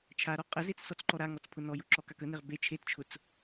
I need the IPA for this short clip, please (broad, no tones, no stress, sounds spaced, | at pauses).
t͡ʃʰ a ɾ ɔ qʼ ə z e t͡s s ɔ t͡s ǃ ɔ ɾ a ŋ ɔ t͡s pʰ ʊ n ɔ j ʊ ǁ ɔ k a k ə n e ʁ b e t͡ʃʰ e t t͡ʃʰ ʊ t͡s